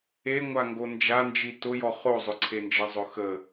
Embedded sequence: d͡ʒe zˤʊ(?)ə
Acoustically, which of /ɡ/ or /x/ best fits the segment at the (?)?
x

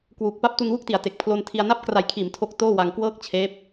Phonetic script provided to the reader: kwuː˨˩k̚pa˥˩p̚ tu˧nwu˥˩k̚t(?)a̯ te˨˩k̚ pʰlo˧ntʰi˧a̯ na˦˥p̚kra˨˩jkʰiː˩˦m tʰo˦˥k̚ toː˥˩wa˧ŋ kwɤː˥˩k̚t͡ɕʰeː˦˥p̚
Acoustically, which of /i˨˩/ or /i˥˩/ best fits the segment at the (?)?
i˨˩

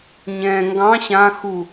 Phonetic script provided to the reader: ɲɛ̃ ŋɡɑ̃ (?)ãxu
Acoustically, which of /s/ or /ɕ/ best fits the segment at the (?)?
ɕ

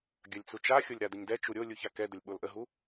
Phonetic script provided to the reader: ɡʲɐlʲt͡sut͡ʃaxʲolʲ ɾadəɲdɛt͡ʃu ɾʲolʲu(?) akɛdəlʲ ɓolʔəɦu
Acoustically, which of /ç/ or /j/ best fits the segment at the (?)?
ç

